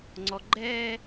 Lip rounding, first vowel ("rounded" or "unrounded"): rounded